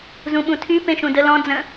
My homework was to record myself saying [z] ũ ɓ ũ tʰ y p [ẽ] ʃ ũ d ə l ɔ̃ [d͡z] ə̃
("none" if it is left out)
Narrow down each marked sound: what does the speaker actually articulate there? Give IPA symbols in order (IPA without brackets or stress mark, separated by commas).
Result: z, ẽ, d͡z